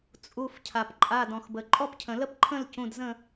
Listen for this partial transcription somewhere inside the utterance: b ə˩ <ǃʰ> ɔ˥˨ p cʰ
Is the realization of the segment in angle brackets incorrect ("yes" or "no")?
yes